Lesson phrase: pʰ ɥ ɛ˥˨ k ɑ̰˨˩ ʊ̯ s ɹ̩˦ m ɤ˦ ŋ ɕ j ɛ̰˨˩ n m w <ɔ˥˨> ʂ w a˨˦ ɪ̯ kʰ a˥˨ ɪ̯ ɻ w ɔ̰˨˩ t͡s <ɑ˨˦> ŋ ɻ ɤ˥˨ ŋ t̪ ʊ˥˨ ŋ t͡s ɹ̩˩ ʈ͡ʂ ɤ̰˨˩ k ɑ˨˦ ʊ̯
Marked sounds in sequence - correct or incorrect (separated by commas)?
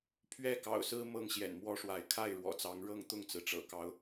incorrect, correct